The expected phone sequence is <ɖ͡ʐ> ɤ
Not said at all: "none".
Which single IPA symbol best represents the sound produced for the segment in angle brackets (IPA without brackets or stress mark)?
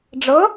ɖ͡ʐ